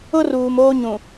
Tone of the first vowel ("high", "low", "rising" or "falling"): high